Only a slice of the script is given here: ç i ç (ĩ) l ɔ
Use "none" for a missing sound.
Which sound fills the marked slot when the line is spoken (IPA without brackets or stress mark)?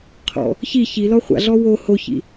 i